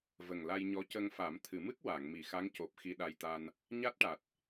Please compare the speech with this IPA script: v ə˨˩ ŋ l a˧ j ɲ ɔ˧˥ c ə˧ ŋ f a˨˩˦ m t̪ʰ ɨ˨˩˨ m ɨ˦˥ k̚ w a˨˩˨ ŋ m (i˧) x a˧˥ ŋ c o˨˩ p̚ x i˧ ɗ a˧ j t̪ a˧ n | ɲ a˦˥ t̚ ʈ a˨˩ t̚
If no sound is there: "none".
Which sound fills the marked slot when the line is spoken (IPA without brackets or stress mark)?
i˨˩˨